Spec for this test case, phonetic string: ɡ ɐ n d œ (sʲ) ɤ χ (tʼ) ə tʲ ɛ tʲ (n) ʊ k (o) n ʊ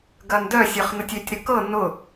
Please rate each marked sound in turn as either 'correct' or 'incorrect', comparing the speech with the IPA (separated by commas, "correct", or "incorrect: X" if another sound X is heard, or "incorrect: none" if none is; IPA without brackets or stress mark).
correct, incorrect: n, incorrect: ɾ, incorrect: ɤ